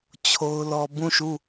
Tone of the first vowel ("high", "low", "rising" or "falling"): high